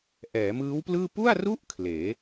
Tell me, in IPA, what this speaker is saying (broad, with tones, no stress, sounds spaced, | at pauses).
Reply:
ʔ ɛː˩˦ m ɯː˦˥ w p l ɯː˥˩ p u˥˩ a̯ r u˥˩ ʔ kʰ l eː˩˦